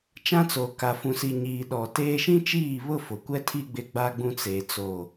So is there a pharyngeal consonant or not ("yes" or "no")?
no